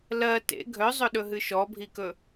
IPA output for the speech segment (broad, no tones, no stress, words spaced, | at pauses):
lɜ tḛ ɡʱœzˤɵɗɵɦɨ ʃɔbʱikɵ